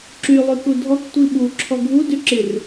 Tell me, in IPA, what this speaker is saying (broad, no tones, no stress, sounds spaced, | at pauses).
ǁ y lˠ y k u dʱ ɔ k tʷ i ɓ u ǁʰ ɔ ɡʱ u d y ǁ ɪ r